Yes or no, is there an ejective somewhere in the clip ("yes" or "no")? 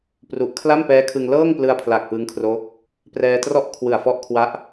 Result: no